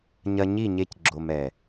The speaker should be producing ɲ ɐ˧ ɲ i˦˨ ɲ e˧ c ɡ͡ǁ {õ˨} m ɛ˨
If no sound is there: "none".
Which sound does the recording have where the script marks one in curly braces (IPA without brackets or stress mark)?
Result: o˨